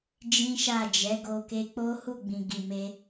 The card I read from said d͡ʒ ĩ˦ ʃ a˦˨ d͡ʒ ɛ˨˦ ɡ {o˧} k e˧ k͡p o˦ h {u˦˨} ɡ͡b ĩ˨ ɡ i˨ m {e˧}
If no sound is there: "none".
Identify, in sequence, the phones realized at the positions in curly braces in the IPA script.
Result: o˧, u˦˨, e˧

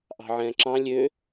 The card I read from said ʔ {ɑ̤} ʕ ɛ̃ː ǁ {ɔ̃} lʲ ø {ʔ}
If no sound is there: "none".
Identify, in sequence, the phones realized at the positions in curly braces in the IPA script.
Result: ɑ̤, ɑ̃, none

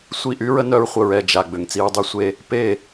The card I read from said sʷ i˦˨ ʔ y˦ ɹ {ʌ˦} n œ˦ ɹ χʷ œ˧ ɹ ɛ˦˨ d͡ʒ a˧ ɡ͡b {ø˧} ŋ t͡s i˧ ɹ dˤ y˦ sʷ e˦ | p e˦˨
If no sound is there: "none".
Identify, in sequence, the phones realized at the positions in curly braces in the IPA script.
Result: ə˦, ø˧

